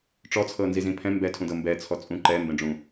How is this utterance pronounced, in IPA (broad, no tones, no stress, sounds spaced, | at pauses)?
ʈ͡ʂ ɔ t͡sʰ ɤ n z i z ĩ pʰ ɛ̃ m b ɛ tʰ ũ d ɤ m b ɛ t͡sʰ ɔ t͡sʼ ũ ǃ ɛ m b ɛ̃ ɖ͡ʐ ũ